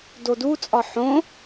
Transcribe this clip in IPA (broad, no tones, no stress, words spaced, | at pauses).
dodut͡sʼɒ ħõ